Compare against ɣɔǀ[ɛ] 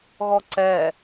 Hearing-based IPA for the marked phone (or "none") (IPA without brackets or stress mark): ɛ